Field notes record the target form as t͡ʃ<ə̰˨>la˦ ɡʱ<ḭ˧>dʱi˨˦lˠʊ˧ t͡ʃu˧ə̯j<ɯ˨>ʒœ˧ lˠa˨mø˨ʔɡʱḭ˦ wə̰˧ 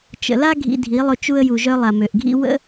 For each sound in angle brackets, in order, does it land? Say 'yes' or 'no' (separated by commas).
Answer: yes, yes, no